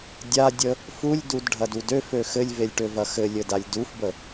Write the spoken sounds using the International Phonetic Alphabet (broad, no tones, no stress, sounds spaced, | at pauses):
dʲ a dʲ ə | f u lʲ d u d ɖʱ ɐ d u d ø f ø x ɘ lʲ v e lʲ ʈ ø v ɐ x ɘ lʲ ɘ d a lʲ d u f b ə